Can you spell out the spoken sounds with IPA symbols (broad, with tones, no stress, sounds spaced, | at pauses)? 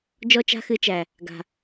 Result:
d͡ʒ ɔ˦ t͡ʃ a̤˦ x ɨ˧ t͡ʃ æ˨ | ɡ a̤˨